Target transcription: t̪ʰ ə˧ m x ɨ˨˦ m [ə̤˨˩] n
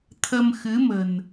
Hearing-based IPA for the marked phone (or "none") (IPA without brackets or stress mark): ə̤˨˩